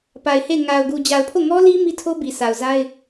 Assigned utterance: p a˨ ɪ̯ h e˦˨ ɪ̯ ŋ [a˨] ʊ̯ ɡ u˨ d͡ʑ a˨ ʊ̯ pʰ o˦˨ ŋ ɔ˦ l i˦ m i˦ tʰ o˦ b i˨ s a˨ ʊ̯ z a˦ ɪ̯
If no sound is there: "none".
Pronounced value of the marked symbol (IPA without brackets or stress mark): a˨